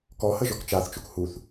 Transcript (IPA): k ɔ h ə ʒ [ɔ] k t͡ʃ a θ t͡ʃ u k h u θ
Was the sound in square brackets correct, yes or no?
yes